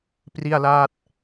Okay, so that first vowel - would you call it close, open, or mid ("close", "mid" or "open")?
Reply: close